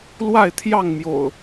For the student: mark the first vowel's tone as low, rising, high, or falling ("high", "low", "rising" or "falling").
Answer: falling